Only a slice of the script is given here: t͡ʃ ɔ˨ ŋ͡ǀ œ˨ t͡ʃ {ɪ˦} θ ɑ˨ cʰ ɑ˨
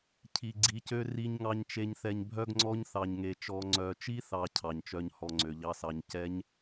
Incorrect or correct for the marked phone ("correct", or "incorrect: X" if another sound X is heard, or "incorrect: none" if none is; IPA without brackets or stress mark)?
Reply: incorrect: i˦